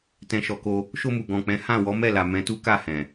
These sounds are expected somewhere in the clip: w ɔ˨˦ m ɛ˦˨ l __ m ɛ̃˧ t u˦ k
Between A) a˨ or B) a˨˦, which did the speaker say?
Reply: A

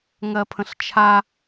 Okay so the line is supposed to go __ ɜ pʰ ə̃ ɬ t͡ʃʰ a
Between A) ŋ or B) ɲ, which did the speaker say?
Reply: A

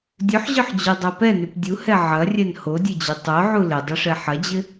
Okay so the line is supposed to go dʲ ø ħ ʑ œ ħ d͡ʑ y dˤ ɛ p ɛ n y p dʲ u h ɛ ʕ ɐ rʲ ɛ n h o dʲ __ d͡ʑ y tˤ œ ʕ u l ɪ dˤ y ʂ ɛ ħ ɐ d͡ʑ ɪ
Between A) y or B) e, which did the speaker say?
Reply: B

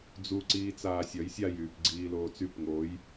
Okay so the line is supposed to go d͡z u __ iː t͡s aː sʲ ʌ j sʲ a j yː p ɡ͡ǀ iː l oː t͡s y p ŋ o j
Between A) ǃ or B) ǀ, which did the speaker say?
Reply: B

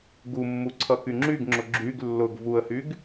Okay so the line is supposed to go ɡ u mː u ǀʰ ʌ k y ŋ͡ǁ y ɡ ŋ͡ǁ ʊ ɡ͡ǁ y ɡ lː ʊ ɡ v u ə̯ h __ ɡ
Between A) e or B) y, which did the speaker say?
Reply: B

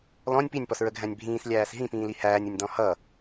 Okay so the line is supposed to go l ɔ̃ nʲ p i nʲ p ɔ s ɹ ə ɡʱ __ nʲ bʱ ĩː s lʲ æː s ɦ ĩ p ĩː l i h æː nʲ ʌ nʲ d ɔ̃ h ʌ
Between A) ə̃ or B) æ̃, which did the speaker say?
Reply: B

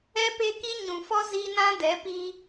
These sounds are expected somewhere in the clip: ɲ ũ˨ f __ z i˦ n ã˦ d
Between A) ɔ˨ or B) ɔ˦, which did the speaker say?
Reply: B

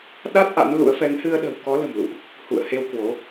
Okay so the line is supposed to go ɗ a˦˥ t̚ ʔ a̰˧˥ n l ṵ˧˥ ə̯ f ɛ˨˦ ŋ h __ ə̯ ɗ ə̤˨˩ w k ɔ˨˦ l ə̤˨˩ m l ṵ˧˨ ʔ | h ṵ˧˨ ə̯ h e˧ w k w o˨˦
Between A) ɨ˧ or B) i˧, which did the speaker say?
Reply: A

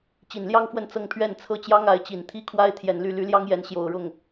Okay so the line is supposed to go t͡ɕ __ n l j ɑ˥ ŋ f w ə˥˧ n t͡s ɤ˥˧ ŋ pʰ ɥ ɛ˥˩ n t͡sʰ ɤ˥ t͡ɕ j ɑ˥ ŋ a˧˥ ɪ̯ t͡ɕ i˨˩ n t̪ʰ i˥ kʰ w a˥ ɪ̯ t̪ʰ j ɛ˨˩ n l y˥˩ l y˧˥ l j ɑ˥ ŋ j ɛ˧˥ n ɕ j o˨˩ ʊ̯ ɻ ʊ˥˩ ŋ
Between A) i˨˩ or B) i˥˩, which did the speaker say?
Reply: A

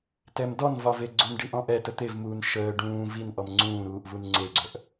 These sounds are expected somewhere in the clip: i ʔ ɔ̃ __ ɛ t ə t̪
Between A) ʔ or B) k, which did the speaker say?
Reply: A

